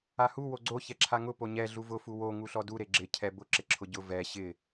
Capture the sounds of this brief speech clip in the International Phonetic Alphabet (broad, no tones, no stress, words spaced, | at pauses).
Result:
ahu woɡ͡ǀo çɛǁʰaŋʊ poɲɛ ɮuvʊ fuwo ŋuɬɔdu ɾeɡ͡ǁɪ cʰɛbʊ ǁɪǁʰʊɟʊ vɛ ɕɪ